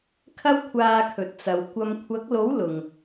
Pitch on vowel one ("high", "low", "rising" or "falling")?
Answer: high